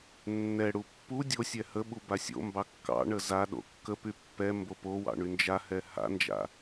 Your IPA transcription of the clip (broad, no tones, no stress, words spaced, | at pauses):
nːɛɽu pːu dʲosʲɛ həɓu basʲo̰mbɑ kːɑ̰ɳə za ɗo̰kːəpy pːɛ mbopowɑ̰ ɳynd͡ʒahɛ ha̰nd͡ʒa̰